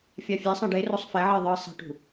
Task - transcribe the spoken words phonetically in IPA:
fʲafʲesˤãɖ e rosˤfɛʕe ðˤɯ sˤe̤ʈṳ

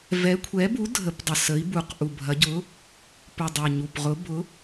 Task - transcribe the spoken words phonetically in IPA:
vɛ˨˥kʷʰɛ˨˥bu˨˥ dʱə˨˥pdˤə˨˩ sə˨˥i̯ bu˨˩qʔu˨˩bʱɐ˨˥ ɟʊ˨˥ | pu˨˩dˤɐ˨˩ɲu˨˩pʁʊ˨˥ bʊ˨˥

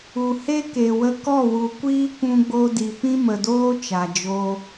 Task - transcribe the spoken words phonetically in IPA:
u˨he˦ke˨wə˧ kɔ˦˨wu˨kʷiː˦ kʷũ˧ɡ͡bo˧di˨ pĩ˦mə˨doː˦ t͡ʃa˨d͡ʒo˦

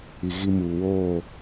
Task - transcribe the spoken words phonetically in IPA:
i˨ɣi˦muː˨ woː˦˨

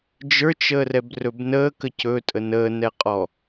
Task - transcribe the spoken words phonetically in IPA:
d͡ʒə˞t͡ʃəːrɛbrɵb nəːkə cɵtʼə nəːnɛqʼɔ

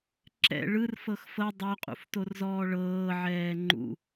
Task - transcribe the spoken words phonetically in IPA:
ǁɛ̰ ɭɯrfɤx fɤ dˤoqʼṵftorzɔː ɭɤːʕɛː ŋ͡ǃṵ

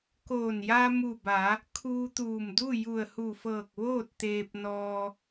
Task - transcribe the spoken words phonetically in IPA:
koː˧˩nja˧ mu˧˩ba˩˧ | kʰuː˧t̪uː˧˩mdu˥˨ ju˧˩ə̯hu˧˩fɤː˧˩k̚ ʋoː˥˨t̚t̪eː˧p̚nɔː˧

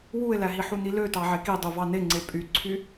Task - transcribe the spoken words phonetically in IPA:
wue̯læɦi ħunilø tɑʕekidˤu vɑneŋ͡ǀe pʼyǀʰy

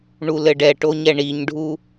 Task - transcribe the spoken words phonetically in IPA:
ɳulɘɖɛʈo ɲɛɳiɲɖʱu

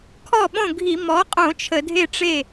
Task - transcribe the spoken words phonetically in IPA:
kʰɔ˥˩ɓõ˥˩ɡʱi˧˩˧ mɔ˩˥qʼõ˧˩˧ t͡ʃʰə˧˩˧dʱe˥˩ʈ͡ʂe˥˩

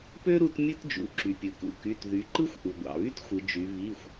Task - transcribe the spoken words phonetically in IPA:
pø˥ ɾu˥t mʲɯ˥td͡ʒṵ˩˧ǁy˩ pʲɯ˩kṵ˩˧˩ky˩˧˩t ðy˩˧ǃɯ˥xʷ ʔu˩ ɡʷɑ̰˩βy˥txʷɯ˩˧d͡ʒy˩˧ βi˩˧˩xʷ

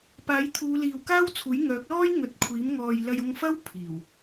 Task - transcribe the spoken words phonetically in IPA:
paː˨˥jt̪ʰuː˨˧ liː˨wkaː˥wt͡sʰuː˨˥j ŋœː˨˥k̚lɔː˥j ŋɵ˨t̚kʷʰiː˨˥m ŋɔː˨j lɐ˧jʊ˧ŋfɐ˥w pʰiː˨˩w

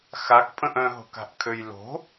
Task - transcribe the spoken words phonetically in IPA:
xakpʼə̃ʔ œ̃ɦo̤ka̤ʔkʰøj lo̤

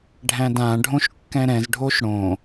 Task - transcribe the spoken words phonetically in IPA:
ɖʱæ̃dãɖʱõʃ kːɛ̃ɾɛ̃zɖʱoʃ ɽõ

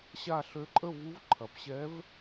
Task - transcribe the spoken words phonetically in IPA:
ɕa˥˨ ɬø˧˥ǃʼə˥˨ vu˧˥vǃʰɐ˩˧pɕɛ˧˥v

